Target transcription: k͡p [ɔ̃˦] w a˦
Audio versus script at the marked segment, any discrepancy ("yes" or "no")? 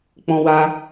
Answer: no